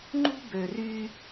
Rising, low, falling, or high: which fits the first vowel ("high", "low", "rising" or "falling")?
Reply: high